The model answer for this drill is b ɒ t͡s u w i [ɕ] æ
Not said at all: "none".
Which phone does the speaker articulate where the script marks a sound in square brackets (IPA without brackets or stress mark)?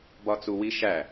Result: ʃ